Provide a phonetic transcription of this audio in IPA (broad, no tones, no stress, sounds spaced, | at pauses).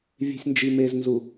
vʲ e̤ sʲ n d͡ʒ i m e z n z u